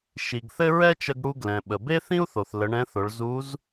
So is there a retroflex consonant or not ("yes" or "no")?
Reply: yes